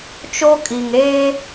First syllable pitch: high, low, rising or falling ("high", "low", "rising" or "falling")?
high